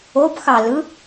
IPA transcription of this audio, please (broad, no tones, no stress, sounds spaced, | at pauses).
o b x ɑ l ɯ